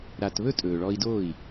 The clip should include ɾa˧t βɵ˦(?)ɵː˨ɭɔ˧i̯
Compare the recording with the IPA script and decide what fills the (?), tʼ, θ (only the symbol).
tʼ